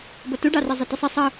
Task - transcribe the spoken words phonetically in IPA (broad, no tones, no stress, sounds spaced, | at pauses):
b ʌ t u ɖ ɑ r ɛ zˤ ɪ t ʊ sˤ ɪ sˤ ɜ